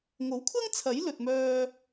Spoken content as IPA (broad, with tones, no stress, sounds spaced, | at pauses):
ŋ o˨˥ w kʷʰ ɐ˥ ŋ t͡sʰ ɐ˨˥ j l ɵ˨ t̚ m œː˧